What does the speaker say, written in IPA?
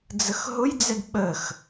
d͡z ə x ɦ ʊ j d͡z ɛ d ɓ ə x

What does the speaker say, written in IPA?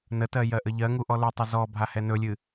n ə t ɜ j ɜ ʔ ə ʎ ɜ ŋ u ʔ ɔ l ɵ tˤ ə z ɔ bʱ a h ɛ n ɵ lʲ ɨ

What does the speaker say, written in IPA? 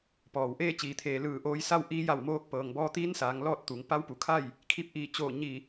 p ɔː˩ w ʔ eː˥˨ t͡ɕ iː˩ t̪ʰ eː˩ l ɯː˧˩ ʔ oː˧ j s a˥˨ w ʔ iː˧˥ j a˧˩ w m oː˧ k̚ p ɤː˩ ŋ b ɔː˧ t̪ iː˧˥ n s aː˩˧ ŋ l ɔː˥˨ t̚ t̪ u˩˧ ŋ p a˧˥ w p u˩˧ kʰ a˥˨ j | kʰ i˧ p̚ ʔ iː˧˩ t͡ɕ oː˧˩ ɲ i˧˩

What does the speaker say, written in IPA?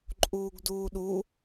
ǃʼ uː ɡ d uː ɗ u

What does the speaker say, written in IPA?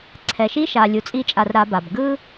ǀʰ ɛ˨ ʃ i˦ ʃ a˨ lʲ u˨ t͡sʼ i˧ t͡ʃʼ a˨ r ɾ a˧ b a˨ b ɡ ɯ˦

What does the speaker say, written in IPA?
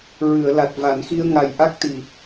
ɹ ɨ˨˩˨ ə̯ l a˨˩ t̚ v a˨˩˨ n x i˧ ə̯ ŋ a˨˩ j ʔ a˦˥ k̚ t̪ i˨˩

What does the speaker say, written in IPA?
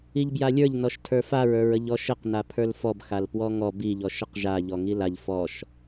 i ʎ b j a lʲ ə˞ ʎ n ɔ ʃ tʰ ə˞ f a ɹ ə˞ ɹ ə ʎ ɔ ʃ ə q n a pʰ ə˞ l f ɔ b x a l p w ɔ ŋ ɔ b i ʎ ɔ ʃ ə q ʒ a ʎ ɔ ŋ i l a ʎ f ɔ ʃ

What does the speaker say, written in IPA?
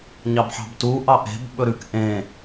ɲ ɑ b ħ ɑ̤ b t u ʔ ɑ ʔ e̤ b ɓ ɵ ɾ ʉ k ʔ ẽ

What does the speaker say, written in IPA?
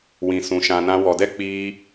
w ĩ˨ s ũ˨ ʃ ã˨ n ã˧ w ɔ˨ d ɛ˦ k͡p iː˧

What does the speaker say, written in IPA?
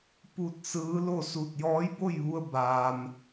p u˧ t̚ s ɯː˧˥ l o˥˨ s u˧˩ t̚ j ɔː˧˥ j b o˥˨ j ʋ u˧ ə̯ b aː˩ m

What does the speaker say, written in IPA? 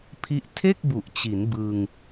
pʰ i˦˥ ʔ tʰ e˥˩ k̚ b u˨˩ ʔ t͡ɕ i˩˦ n b ɯ˧ ŋ

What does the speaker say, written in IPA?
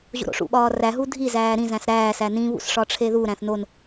ʑ o̰ ɾ o̰ ʂ ṵ ɓ ɒː r æ ɦ u dʱ i z æː ɾ ĩ z æ̃ s ɾ æː s æ n ĩ β ṵ s ʂ ɒ ʈ͡ʂʰ e ð u ɾ æ̃ θ n o n

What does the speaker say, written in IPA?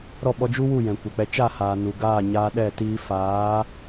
ɾ ɔ˦˨ ɓ ɔ˧ d͡ʒ u˦ w u˦˨ j ɛ̃˨ kʷ ɛ˨ k͡p ɛ˧ t͡ʃ a˦˨ h aː˨ n u˨ ɡ aː˦˨ ɲ aː˧ ɗ ɛ˦˨ t iː˧ f aː˨˦

